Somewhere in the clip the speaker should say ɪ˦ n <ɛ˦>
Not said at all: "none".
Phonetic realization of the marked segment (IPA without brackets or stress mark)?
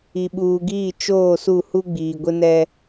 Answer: ɛ˦